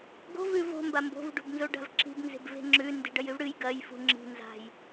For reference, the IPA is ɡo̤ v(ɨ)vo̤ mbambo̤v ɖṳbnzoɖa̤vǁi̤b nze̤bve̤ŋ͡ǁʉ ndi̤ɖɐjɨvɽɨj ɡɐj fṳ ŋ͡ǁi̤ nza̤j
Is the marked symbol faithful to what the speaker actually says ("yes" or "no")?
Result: no